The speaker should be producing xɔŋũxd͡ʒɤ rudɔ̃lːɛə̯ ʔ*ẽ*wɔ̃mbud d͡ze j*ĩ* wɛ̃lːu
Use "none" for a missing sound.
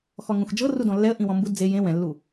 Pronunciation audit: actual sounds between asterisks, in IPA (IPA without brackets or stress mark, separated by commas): ĩ, ẽ